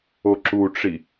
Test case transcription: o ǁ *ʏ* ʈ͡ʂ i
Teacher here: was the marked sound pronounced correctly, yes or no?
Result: no